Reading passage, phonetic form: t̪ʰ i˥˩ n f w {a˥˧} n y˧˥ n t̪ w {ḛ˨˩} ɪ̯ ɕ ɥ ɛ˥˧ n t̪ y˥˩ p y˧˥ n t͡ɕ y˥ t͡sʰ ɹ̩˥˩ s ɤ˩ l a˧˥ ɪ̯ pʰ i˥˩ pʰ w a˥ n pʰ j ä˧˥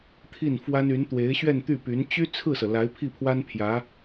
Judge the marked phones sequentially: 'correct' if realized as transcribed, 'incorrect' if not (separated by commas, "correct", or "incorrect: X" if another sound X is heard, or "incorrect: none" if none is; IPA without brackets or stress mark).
incorrect: a˥, incorrect: e˧˥